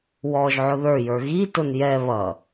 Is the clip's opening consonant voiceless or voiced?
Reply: voiced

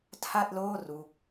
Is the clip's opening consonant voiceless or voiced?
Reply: voiceless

